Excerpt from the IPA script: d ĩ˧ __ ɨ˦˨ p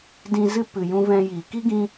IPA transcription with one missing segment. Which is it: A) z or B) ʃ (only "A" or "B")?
A